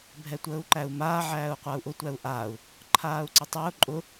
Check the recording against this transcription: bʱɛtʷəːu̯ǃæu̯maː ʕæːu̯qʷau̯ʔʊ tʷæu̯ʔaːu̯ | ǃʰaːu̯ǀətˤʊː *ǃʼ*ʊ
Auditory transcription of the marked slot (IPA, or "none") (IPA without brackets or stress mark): ǃʼ